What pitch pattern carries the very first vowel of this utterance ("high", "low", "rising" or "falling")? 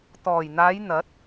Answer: low